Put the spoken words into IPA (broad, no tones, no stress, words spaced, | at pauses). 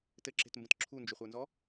tɘǁe̤tmbə̃t ǁʰund͡ʒʏχʷə˞nzɔ